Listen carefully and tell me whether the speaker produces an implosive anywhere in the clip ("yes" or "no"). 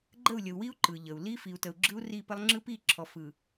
no